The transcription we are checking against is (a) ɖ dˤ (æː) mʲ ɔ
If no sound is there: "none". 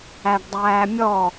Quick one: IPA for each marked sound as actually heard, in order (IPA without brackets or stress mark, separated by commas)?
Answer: æ, æː